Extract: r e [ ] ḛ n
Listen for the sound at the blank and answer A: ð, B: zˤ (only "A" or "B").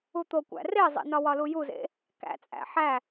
B